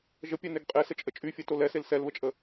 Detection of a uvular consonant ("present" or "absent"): present